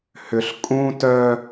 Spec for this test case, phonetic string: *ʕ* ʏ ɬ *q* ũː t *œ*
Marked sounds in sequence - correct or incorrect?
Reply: incorrect, incorrect, correct

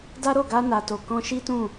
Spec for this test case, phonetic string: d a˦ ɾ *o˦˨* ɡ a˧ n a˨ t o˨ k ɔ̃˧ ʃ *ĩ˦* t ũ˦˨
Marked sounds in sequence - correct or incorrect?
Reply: correct, incorrect

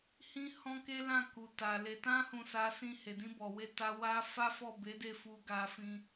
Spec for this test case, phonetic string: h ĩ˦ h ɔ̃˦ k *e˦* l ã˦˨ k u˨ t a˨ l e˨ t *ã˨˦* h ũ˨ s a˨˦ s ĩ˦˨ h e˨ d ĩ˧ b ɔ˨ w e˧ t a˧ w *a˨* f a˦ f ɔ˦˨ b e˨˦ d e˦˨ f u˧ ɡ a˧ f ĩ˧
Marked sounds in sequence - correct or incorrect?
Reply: correct, incorrect, incorrect

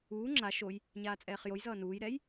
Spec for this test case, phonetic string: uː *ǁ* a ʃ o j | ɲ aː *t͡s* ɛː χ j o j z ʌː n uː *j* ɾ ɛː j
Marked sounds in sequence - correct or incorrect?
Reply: incorrect, incorrect, correct

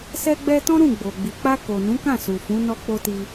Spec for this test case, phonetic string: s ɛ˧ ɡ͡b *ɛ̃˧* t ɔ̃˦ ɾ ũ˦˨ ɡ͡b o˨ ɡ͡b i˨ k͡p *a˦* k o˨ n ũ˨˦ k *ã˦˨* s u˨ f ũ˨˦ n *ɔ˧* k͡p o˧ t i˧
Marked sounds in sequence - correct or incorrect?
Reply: incorrect, incorrect, correct, correct

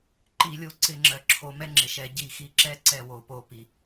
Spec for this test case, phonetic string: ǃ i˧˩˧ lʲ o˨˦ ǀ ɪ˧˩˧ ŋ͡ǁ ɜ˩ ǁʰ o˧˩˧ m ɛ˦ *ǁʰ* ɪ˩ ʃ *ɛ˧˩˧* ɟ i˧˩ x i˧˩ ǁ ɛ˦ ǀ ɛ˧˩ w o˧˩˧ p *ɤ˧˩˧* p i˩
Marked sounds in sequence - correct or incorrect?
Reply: incorrect, correct, incorrect

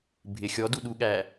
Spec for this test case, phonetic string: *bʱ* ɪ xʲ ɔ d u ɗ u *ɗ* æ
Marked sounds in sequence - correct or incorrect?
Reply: correct, incorrect

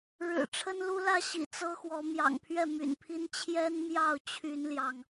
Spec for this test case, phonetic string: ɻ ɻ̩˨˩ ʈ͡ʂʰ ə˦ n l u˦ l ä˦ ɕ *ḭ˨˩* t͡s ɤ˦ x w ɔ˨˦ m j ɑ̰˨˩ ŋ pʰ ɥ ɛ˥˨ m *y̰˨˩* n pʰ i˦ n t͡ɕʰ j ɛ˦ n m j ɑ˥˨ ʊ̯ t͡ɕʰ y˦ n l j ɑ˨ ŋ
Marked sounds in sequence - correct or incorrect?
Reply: correct, correct

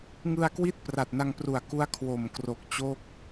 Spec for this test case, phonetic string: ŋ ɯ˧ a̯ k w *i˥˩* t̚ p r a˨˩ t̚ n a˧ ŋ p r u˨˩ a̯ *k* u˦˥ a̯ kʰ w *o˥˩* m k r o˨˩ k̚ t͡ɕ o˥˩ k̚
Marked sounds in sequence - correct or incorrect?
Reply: correct, correct, incorrect

